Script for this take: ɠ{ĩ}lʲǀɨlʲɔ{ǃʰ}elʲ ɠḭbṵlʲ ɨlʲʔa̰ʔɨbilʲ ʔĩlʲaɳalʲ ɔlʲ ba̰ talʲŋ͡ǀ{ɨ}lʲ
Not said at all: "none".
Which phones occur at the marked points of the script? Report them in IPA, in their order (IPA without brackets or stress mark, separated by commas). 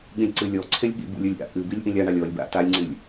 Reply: ĩ, ǀʰ, ɨ